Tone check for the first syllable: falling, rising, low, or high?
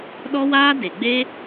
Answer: high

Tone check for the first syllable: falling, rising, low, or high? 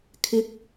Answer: rising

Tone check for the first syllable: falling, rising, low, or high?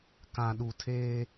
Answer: low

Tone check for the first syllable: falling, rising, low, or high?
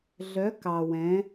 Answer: rising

